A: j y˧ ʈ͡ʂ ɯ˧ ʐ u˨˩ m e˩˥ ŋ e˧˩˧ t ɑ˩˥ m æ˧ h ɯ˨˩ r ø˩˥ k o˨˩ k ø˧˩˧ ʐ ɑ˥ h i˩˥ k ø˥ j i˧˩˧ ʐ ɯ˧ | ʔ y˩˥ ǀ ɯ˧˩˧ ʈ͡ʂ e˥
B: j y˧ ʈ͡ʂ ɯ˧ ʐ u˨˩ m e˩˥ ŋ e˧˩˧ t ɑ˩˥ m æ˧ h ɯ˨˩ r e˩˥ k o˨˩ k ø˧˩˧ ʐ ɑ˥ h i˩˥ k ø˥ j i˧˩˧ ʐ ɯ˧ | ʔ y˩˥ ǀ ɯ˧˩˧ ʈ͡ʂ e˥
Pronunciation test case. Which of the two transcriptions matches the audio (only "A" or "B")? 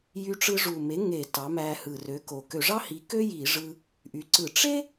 A